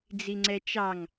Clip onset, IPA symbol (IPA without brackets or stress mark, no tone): d͡z